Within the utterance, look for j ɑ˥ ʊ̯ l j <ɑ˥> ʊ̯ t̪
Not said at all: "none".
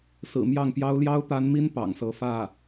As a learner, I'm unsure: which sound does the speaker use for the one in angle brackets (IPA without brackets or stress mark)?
ɑ˥